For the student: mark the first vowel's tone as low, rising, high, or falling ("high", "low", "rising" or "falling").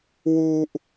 high